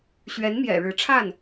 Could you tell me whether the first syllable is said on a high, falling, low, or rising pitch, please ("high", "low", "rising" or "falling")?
rising